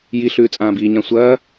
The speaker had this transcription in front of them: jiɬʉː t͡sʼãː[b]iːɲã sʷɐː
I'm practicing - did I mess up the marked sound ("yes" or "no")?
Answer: no